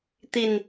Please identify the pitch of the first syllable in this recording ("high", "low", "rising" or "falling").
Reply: low